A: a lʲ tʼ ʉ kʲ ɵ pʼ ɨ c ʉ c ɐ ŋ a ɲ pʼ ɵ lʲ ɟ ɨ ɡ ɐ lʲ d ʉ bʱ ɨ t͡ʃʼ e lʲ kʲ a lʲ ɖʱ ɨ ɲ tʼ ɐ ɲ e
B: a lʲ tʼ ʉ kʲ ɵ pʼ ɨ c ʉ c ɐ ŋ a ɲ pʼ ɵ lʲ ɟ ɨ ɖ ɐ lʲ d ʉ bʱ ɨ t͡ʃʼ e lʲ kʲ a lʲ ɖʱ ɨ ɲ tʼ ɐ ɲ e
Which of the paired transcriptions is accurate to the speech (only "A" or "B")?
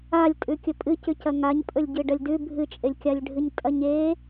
B